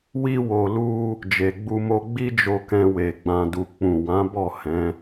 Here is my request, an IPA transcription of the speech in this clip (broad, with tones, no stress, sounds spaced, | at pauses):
w i˦ w o˧ l u˦ | d͡ʒ e˨ ɡ͡b u˧ m o˧ ɡ͡b i˦ d͡ʒ o˧ k ɛ̃˧ w e˨ ɡ͡b ã˧ d u˧ k͡p ũ˨ w ã˨˦ b ɔ˦˨ h ɛ̃˨˦